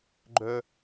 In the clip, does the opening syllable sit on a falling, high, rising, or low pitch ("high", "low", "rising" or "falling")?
high